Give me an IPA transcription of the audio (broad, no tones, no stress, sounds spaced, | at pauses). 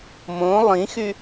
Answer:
m õ lˠ ĩ x y